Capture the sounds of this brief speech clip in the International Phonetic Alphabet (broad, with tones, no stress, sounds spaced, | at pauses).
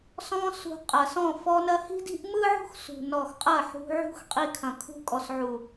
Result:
s ɔ̃˧ s ṳ˨ qʼ ɐ˨ s ɔ̃˦˨ f ɔ˧ n ɐ˧ h i̤˦ d i̤˦ ʔ m ɯ˦ ʕ ṳ˦ x s ṳ˨ n ɔ˨ x qʼ ɐ˦˨ ħ ṳ˧ ʕ ṳ˦ x qʼ i˧ kʰ ɐ̃˨ kʰ ṳ˧ kʼ ɔ˨ s ʕ u˨